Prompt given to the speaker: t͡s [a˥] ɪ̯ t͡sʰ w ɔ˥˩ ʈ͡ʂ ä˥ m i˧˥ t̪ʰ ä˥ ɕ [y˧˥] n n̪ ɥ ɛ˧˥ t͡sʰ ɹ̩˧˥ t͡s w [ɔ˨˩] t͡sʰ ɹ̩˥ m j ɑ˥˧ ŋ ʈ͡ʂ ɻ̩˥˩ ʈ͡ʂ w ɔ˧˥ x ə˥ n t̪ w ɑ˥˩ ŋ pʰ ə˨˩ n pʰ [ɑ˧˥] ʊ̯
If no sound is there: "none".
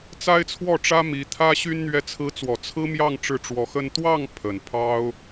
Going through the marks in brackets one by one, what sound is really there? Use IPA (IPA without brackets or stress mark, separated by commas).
a˥, y˥, ɔ˨˩, ɑ˥